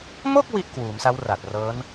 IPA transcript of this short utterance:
m o˥˩ k̚ w i˥˩ ʔ k w uː˩˦ m s a˦˥ w r a˨˩ t̚ r ɤː˦˥ n

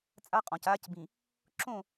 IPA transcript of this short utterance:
t͡sʼ a˦ qʼ ɔ̃˨ c aː˦ c b ĩ˨ | ǁ õ˦˨

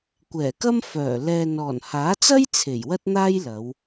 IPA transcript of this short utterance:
kʷ ɛː˨˩ k ɐ˥ m f œː˨˩ l ɛː˨ n ɔː˨˩ n h aː˨˥ t͡s ɐ˥ j t͡sʰ e˨˩ j w ɐ˥ t̚ n̪ aː˥ j l ɐ˨˧ w

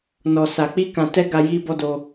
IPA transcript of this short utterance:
n ɔ˨ s a˨ k͡p i˧ k ã˨ t ɛ˧ ɡ a˧ j i˦ b ɔ˦ d o˧

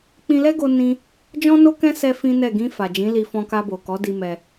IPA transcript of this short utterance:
k͡p ĩ˧ l ɛ˦ ɡ o˦ n ĩ˦ | d͡ʒ ɔ̃˦ n o˦ k ɛ̃˦ s ɛ˦ f ĩ˦ n ɛ˦˨ ɡ ĩ˧ f a˨ d͡ʒ ĩ˨˦ l i˧ f ɔ̃˧ k a˧ b o˨ k ɔ˨˦ d i˧ m ɛ˧

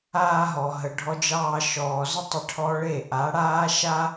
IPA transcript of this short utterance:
aː˧ ɦ ɔ˨ ɦ ə˨ ɖʱ ɔ˧ d͡ʒ ɑː˧ ʃ ɔː˨ z ə˦ tˤ ə˧ ʈʰ ɔ˧ ɭ e˦˨ ʔ a˨˦ ɽ aː˦ ʃ a˦

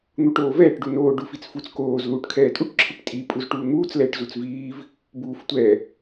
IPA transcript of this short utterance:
n̪ u ʈ oː v ɛː ʈ ɖ u n oː ɖ u f i t͡s f u t͡s k oː z l uː ʈ kʰ ɛː tʼ u ʈ ǁʰ i ʈ tʼ i pʼ u z ʈ uː n̪ uː t͡s l ɛː ʈ z u t͡s v iː v | b uː f tʷ ɛ

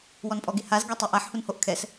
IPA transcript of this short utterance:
w ɔ n pʼ ɔ ɡ e h a z ɡ ɛ tˤ o ʔ a ħ h u n h o ʔ kʰ ɛ s

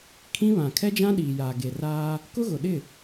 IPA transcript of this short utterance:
kʰ ĩ˦ β ã˨ kʰ ɛ˦ d͡ʒ ã˦ ɗ iː˨ j aː˨ ɡ e˨ r aː˦ | k ʊ˦ ɣ ʊ˨ ɗ ɪ˦˨

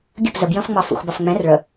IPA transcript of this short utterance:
ɡʲ ə p z ə b j ə̃ f ŋ͡m ɑ f ṵ x b ɑ f ŋ͡m ɛ̃ r ɭ ə

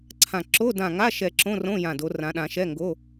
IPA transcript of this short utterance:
ǀʰ ã˧˩ ǁ o˧˥˧ d ã˧˩ ŋ a˧˥˧ ʃ ɛ˧˩ ǁ õ˧˥˧ r õ˧˥˧ j ã˧˩ d o˨˦ r ã˨˦ ɗ ã˨˦ ʃ ɛ˧˥˧ ŋ ɡ o˧˥˧

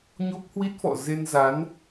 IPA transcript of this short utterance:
ɲ o˦˥ p̚ h w i˦˥ t̚ f ɔ̰˧˨ z e˧ n z a˨˦ n

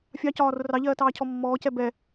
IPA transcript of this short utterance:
fʲ ɑ c ɒː r ʊ r ɑ ʎ ɜː t ɑː cʰ ɔ mː ɔː c ɛ b ɛ

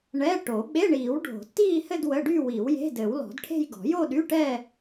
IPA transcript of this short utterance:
ɳ ɛ˧˥˧ ʈ o˨˩˦ ɓ e˧˥˧ ɳ iː˨˩˦ w ɖʱ o̤˨˩˦ tː iː˥˧ h ɘ˥˧ d w ə˧˥˧ ɖ y˥˧ w i˨˩˦ w j e̤˧˥˧ d ɘː˨˩˦ w l ɔ̤˨˩˦ d ʈʰ e̤˥˧ j ɡ ɔ̤˨˩˦ j o˥˧ ɗ y˧˥˧ ʈ ɛ˥˧

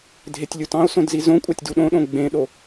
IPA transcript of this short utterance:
dʱ e tʲ lʲ u t ɑ̃ o̯ s õ d z i z õ kʷʼ ɑ tʲ d u ɗ õ ɗ õ ɡ͡b ẽ ɗ o

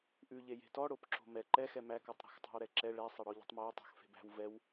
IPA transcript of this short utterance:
ʔ ʉ ʎ e j e̤ t ɔ ɽ o p ǁ o̤ m ɛ ǃ ɛ x ɛ m æ k ɔ tˤ ɾ æ̤ x tˤ æ̤ w ɾ ɛ ǁ ɛ ɭ ɛ sˤ ɛ ɽ ɔ ʎ e̤ tˤ m æ w tˤ æ̤ x f e̤ b æ̤ w v ɛ w

